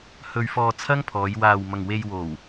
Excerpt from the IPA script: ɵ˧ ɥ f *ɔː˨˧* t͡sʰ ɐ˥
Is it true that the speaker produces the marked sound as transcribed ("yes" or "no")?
no